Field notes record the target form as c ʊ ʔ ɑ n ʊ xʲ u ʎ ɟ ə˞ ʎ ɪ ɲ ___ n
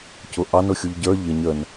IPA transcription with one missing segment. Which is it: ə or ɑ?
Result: ə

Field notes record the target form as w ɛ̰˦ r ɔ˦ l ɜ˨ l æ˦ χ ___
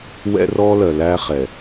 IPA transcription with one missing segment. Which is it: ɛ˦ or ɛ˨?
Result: ɛ˨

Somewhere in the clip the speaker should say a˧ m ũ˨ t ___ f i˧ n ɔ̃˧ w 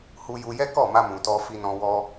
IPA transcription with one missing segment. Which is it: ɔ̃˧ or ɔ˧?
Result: ɔ˧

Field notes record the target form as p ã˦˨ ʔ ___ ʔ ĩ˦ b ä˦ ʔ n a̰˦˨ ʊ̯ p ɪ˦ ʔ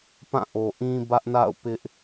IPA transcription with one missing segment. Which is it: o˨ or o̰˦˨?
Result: o˨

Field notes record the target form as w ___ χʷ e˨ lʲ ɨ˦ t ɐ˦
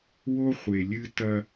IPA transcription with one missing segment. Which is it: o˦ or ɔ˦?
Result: o˦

